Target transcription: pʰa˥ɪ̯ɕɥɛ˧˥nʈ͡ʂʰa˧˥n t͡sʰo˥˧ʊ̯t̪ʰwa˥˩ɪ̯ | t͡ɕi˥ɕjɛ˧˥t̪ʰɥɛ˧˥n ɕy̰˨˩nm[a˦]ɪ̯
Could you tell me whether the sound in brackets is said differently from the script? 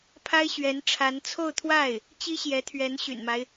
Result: no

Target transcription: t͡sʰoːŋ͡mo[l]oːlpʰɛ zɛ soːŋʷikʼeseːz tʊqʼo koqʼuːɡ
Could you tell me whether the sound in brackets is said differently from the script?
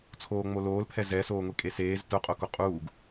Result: no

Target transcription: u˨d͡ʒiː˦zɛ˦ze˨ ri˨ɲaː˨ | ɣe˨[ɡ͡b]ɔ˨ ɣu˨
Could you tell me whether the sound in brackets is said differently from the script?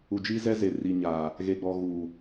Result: no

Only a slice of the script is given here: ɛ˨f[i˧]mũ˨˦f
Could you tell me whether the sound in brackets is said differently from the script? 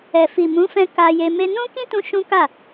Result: yes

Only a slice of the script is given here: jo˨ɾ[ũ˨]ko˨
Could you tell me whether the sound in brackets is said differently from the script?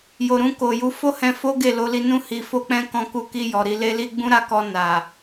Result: yes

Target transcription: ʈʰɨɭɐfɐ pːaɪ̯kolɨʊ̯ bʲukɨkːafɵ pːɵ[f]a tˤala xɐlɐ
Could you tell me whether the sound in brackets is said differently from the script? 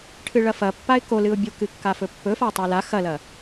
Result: no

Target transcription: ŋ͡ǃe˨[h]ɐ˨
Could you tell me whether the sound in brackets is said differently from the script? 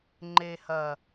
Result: no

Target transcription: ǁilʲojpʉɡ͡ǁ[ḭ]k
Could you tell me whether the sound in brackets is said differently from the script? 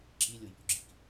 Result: no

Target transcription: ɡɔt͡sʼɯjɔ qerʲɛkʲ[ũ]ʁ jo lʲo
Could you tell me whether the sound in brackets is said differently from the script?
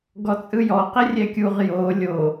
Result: yes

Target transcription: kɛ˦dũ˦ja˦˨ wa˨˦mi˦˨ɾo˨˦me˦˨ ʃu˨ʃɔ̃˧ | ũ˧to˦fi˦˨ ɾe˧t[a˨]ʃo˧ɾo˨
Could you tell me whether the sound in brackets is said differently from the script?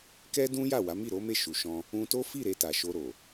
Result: no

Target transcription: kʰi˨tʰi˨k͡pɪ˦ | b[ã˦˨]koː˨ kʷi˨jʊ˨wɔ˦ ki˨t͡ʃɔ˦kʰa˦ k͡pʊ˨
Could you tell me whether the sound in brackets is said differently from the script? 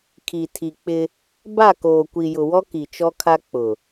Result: yes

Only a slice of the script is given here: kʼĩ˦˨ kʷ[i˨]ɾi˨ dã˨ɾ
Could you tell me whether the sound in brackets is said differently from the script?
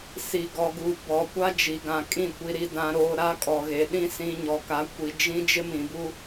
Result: no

